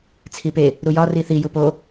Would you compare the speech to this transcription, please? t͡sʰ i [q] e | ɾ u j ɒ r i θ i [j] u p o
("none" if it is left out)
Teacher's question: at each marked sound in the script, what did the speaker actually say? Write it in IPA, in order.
p, j

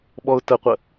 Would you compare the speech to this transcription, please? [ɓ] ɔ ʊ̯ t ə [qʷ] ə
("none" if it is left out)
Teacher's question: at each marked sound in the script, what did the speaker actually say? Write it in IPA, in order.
ɓ, qʷ

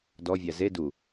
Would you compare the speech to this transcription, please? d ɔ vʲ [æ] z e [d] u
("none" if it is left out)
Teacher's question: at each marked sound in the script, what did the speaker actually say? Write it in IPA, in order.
æ, d

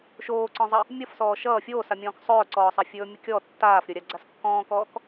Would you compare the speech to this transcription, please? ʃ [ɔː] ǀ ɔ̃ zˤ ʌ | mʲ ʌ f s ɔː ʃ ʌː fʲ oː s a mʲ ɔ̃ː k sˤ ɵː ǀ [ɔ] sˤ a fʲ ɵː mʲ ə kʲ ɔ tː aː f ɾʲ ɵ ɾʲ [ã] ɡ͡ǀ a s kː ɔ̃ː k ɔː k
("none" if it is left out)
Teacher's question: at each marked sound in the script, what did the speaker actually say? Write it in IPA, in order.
oː, ɔː, a

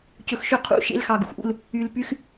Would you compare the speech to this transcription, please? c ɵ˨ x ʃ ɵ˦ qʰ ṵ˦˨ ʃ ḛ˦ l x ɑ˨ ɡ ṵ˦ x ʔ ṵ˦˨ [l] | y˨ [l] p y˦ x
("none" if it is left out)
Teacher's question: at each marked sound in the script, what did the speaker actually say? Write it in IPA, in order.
l, l

